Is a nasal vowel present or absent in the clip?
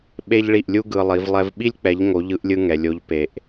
absent